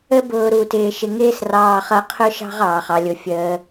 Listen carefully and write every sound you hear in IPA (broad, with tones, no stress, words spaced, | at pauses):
ə˥bʊː˧ ɾu˧tɪː˧ʃɪ˧ ŋɪː˥srɑː˧χʌ˧ qʰʊ˥ʃɑ̤˥ʁɑː˩χ ɑ˩lʲʊ˩fʲəː˩